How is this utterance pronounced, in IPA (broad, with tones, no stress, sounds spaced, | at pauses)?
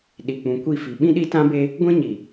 ɗ i˨ k͡p ũ˨ kʷ i˦˨ f i˨ ɓ ĩ˦ ɗ i˦ t ã˦ b e˦ | ɡʷ ĩ˦ ɲ i˨